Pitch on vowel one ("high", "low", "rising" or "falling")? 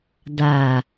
low